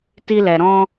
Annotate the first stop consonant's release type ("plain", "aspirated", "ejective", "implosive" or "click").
plain